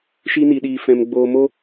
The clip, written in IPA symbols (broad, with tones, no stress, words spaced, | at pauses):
ʃi˧ni˨ɗiː˨ fɛ̃˨m ɡ͡boː˨mo˧